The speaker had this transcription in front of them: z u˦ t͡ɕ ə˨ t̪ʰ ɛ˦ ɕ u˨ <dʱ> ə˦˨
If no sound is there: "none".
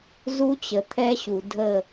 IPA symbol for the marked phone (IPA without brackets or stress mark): dʱ